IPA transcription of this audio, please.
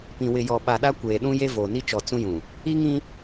pĩ˨ wɪ˨jɔ˨ɓa˨ ɗa˦kʷeː˨ɗũ˦ je˦voː˨ni˦t͡ʃɔ˨ t͡sũ˦jũ˨ | i˦ŋĩ˦

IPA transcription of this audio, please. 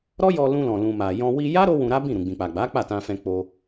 ɾɔ˦jɔ˧lũ˧lɔ̃˨ lũ˨ ma˨jɔ̃˧ wi˧ja˦ ɾo˦wũ˧ɾa˦bĩ˦˨ ɾũ˨ɡ͡bĩ˨k͡pa˨ɡ͡ba˨˦ k͡pa˦˨tã˧fɛ̃˧ k͡po˧

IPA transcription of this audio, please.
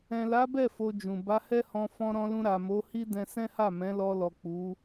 ɛ̃˨la˨˦bɛ˦˨ fo˧d͡ʒũ˨ ba˨˦hɛ˦hɔ̃˧ fɔ̃˧ɾɔ̃˧lũ˧ ɾa˨mo˨˦hi˦dɛ̃˧ sɛ̃˦ha˦˨ mɛ̃˨˦lɔ˧lɔ˨ k͡pu˨˦

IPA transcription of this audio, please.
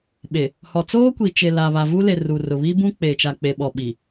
ɓe˨ | hɔ˨t͡soː˦kʷi˨ t͡ʃe˨ la˨ βa˨vu˦le˨ ru˨rʊ˨βi˦bũ˦ k͡peː˨t͡ʃa˨k͡pe˨ ɓɔ˨ɓi˨

